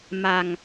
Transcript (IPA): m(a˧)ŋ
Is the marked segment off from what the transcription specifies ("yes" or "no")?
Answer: no